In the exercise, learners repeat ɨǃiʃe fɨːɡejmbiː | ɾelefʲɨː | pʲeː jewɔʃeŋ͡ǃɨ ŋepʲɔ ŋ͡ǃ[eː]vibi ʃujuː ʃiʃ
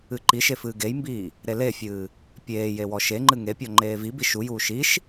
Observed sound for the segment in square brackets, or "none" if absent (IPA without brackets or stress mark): eː